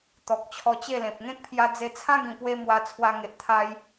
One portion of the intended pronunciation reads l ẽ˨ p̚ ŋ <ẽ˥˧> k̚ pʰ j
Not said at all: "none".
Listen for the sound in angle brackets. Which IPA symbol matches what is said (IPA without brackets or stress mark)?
ẽ˦